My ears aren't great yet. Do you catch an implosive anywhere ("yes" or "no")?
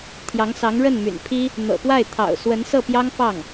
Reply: no